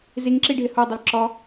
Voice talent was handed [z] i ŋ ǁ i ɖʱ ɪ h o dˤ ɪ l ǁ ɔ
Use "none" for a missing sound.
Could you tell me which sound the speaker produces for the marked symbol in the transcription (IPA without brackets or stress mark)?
z